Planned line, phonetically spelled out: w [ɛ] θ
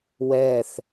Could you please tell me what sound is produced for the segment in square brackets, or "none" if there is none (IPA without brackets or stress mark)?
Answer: ɛ